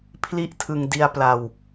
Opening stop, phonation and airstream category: aspirated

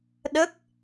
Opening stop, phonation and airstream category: implosive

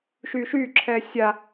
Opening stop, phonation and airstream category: click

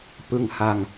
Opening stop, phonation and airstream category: plain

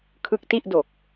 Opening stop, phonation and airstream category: aspirated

